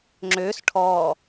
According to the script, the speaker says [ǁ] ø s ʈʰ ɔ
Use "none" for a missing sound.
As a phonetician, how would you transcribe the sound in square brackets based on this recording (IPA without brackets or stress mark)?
ŋ͡ǁ